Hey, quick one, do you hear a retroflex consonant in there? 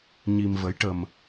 yes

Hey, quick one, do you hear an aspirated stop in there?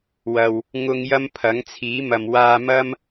yes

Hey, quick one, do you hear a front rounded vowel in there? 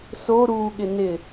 no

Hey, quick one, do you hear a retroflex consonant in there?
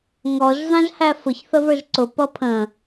no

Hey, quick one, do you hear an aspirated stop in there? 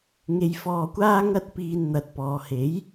no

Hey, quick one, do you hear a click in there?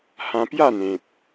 no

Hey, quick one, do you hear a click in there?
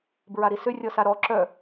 yes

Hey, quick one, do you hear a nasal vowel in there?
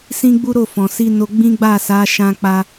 yes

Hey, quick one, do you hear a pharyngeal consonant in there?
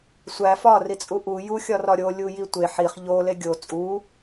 yes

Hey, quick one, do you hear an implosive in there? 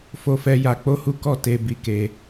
no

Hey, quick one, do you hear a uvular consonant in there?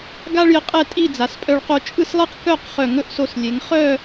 yes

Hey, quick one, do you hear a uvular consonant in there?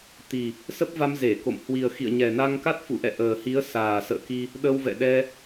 no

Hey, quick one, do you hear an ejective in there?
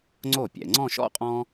yes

